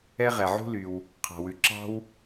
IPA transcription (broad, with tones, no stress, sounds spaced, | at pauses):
ɛ˥ ʁ ɛ˩ ʕ ṳ˥ l y˩ w | qʰ ɑ̤˩ w ʉ˩ ǁ ɑ̤˥ w